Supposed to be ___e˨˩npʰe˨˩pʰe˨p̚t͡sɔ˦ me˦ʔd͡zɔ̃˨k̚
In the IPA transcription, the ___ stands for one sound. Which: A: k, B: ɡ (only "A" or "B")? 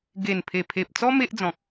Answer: B